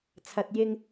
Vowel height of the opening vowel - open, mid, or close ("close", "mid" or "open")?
open